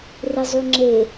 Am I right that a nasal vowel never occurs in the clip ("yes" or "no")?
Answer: yes